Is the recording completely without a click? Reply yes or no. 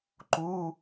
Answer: no